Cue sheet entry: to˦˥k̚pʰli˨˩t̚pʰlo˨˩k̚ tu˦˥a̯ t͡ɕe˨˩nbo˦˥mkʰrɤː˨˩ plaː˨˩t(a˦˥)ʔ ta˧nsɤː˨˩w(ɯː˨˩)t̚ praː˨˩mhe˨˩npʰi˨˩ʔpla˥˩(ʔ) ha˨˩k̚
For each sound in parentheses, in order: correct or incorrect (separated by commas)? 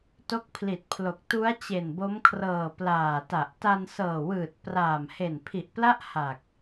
incorrect, correct, correct